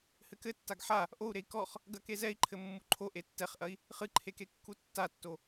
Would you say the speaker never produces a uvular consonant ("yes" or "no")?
no